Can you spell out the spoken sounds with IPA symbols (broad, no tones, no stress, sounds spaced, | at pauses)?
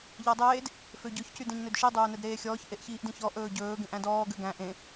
ʎ æ dˤ eː d | f ø ɟ ɵ ç c y d ẽ ɲ n ø d ʃ i dˤ ɵː n ɛ d ɾ eː xʲ ɔː ç ʔ e ʔ ç iː ʔ d ĩ ç ɔ ʔ ɵː ɟ ɵː ɡ ẽ ʔ æ̃ d ɔː ɡ ø ɡ æ̃ ʔ ẽ